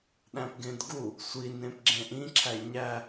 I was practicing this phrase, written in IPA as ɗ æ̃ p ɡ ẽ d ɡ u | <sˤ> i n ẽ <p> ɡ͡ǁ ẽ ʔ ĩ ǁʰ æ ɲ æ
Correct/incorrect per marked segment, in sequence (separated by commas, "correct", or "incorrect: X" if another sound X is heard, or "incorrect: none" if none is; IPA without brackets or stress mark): incorrect: sʷ, correct